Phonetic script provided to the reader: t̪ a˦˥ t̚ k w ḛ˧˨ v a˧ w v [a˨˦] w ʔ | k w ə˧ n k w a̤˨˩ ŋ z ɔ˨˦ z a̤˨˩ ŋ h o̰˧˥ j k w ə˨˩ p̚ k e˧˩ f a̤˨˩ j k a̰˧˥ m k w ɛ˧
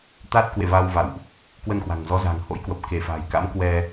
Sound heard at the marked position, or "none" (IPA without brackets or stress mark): a̰˧˨